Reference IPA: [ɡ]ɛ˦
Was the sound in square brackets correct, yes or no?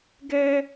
yes